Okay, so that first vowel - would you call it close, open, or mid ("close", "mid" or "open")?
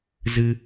close